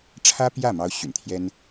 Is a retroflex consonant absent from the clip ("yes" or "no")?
no